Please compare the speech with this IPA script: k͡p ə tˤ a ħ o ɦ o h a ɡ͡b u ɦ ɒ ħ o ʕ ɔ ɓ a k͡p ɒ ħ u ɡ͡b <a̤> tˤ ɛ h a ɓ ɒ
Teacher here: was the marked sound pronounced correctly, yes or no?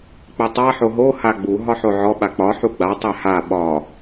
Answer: no